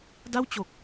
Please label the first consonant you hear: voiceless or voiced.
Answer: voiced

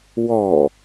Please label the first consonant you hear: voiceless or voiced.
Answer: voiced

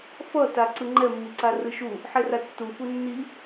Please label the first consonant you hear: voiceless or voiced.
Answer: voiceless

